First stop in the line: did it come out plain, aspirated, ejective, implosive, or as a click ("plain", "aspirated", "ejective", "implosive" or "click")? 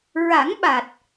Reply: implosive